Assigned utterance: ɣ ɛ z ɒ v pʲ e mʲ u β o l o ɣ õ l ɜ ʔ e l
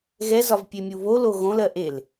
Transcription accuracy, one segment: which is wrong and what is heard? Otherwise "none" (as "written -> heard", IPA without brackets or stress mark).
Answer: none